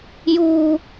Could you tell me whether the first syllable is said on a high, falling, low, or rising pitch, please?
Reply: high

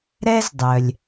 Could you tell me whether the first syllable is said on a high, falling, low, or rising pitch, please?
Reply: high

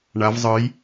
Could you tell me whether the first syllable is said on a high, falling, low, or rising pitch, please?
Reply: rising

